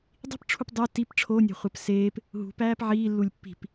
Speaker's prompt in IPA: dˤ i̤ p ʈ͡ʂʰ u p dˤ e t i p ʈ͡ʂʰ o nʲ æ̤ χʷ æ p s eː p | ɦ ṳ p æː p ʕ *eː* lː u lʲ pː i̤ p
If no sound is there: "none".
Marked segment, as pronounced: iː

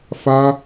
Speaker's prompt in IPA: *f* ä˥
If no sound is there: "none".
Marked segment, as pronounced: f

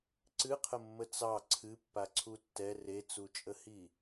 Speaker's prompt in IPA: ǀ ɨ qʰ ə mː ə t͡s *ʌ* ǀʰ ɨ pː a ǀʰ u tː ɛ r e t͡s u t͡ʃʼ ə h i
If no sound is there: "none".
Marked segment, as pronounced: ɑ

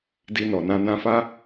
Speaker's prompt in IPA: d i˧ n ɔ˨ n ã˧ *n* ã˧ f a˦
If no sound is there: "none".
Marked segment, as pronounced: n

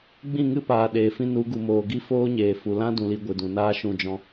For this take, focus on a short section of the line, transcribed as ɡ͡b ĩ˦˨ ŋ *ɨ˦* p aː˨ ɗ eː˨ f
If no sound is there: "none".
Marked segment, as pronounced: ɨ˦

